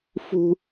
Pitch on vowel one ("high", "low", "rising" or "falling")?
high